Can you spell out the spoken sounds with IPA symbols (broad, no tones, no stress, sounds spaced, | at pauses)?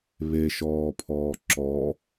β e ʃ ɔː pʰ ɔː ǁ ɔ